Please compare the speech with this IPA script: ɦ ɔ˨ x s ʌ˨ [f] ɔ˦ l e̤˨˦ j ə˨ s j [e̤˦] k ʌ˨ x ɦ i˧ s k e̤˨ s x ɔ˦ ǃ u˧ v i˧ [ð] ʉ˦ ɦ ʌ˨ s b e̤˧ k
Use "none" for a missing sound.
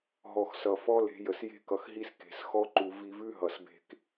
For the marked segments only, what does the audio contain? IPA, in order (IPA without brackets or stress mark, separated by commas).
f, e̤˧, v